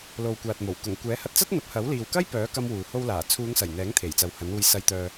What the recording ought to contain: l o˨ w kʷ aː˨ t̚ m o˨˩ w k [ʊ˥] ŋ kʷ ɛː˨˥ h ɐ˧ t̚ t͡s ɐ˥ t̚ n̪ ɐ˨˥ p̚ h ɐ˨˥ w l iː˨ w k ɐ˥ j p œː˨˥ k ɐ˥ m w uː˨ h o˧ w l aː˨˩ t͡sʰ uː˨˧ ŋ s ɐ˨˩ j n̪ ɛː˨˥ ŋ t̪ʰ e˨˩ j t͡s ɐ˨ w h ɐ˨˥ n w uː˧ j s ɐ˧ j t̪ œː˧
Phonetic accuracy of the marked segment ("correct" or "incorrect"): incorrect